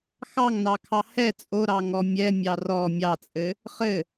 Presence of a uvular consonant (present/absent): present